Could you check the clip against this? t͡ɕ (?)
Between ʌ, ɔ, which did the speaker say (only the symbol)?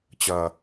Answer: ʌ